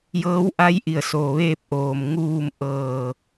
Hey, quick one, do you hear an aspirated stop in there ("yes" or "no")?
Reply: no